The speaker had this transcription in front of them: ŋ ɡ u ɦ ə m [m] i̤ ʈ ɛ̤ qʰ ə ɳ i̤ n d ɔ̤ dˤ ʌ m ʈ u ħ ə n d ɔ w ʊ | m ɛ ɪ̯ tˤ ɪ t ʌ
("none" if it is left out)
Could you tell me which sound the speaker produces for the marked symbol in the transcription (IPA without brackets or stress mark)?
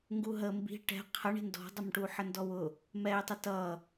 b